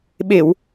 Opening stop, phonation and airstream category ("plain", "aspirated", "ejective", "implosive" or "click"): implosive